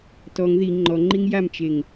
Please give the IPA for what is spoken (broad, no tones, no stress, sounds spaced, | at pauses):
t ɔ ŋ ð i ŋ͡ǃ ɔ ŋ͡ǃ i ŋ j a m t͡ʃ e ŋ